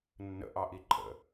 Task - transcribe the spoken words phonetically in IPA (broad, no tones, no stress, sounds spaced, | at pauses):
nː ə̰ ʔ ɑ ʔ i ǃʼ ə̰